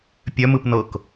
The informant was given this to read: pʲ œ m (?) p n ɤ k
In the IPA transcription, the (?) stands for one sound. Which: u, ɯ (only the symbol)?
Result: ɯ